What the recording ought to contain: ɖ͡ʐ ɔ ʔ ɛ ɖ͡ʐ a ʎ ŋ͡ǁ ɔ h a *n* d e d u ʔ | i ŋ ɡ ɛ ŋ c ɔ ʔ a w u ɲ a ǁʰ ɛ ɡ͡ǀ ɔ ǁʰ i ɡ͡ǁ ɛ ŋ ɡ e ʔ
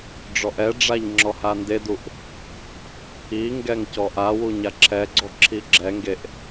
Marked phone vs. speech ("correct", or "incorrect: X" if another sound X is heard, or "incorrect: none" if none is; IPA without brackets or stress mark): correct